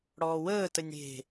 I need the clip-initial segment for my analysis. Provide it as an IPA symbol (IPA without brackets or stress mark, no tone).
ɽ